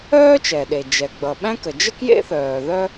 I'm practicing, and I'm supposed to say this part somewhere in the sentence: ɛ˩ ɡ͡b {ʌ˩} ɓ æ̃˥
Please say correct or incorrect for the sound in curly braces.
correct